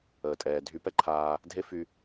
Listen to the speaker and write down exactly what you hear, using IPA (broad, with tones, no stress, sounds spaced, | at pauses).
əː˩ tʼ ɛː˩ dʱ y˧ p ɛ˥ ǃʰ aː˧ | dʱ e˥ f y˧